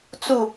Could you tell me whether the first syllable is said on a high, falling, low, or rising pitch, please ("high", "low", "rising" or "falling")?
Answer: falling